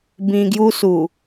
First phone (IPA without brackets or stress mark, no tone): b